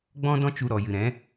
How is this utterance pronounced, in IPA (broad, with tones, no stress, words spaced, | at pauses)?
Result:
ɡ͡bɔ̃˦dɔ̃˦ t͡ʃu˧ ɾɔ˨jɨ˨ɾɛ̃˨˦